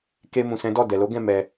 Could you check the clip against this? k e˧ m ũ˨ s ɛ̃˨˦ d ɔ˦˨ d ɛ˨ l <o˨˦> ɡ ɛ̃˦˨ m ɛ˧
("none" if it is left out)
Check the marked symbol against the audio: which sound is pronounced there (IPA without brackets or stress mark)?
o˨˦